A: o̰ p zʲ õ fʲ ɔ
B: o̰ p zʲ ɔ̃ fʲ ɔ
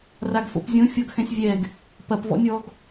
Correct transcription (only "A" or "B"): A